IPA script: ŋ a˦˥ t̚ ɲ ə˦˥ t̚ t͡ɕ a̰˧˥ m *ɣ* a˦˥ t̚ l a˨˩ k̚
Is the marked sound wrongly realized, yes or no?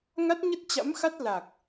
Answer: yes